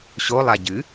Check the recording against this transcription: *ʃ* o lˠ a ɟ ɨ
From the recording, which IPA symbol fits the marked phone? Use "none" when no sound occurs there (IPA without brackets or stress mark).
ɕ